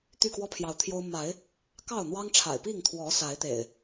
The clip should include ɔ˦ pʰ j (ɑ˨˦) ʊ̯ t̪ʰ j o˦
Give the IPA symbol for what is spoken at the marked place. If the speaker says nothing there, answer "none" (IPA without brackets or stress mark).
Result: ɑ˨˦